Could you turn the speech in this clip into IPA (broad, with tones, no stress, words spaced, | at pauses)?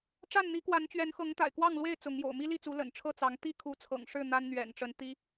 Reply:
ʈ͡ʂa˥˨nn̪i˨˦ kwa˨˦nt͡ɕɥɛ˨˦nxɤ˨˦ŋ t̪a̰˨˩ɪ̯kwɑ˥˨ŋlwe˥˨ɪ̯ t͡sʊ˨˦ŋjo̰˨˩ʊ̯ mi˦li˥˨t͡su˨˦ lə̰˨˩n ʈ͡ʂʰɤ˥˨t͡sɑ˨˦ŋ t̪i˥˨kʰu˨˦ t͡sʰɤ̰˨˩ŋʂɻ̩˥˨ n̪a˦nn̪ɥɛ̰˨˩nʈ͡ʂə˨˦n t̪i˦